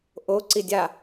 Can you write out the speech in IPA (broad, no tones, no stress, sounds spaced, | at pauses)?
ʔ o ǀ i dʲ a